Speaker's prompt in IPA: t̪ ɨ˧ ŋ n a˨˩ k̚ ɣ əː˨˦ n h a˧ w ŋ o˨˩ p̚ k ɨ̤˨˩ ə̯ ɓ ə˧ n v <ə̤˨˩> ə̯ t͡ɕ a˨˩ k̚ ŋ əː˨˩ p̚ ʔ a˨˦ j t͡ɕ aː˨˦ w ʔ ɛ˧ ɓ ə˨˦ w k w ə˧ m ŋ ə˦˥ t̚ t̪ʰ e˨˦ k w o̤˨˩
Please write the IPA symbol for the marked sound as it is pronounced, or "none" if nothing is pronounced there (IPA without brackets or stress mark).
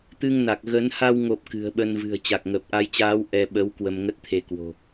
ɨ̤˨˩